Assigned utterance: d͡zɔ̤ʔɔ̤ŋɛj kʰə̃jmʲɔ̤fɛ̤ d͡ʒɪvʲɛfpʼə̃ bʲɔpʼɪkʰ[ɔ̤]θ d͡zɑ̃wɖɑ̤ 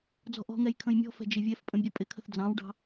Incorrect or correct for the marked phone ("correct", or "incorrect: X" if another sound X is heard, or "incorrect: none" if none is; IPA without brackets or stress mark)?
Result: incorrect: ə̤